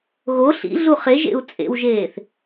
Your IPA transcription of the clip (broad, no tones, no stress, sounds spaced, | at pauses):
ɣ o ɬ ḭ ɮ u χ e ʒ ḛ u̯ t͡sʼ ḛ w ʒ eː θ